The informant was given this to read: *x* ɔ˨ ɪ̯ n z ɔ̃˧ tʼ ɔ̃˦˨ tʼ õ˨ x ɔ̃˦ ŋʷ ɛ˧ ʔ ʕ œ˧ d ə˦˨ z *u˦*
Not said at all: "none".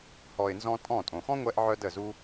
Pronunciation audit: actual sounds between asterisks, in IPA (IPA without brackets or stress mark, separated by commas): h, u˦